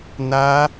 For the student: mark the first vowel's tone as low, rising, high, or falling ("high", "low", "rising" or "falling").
high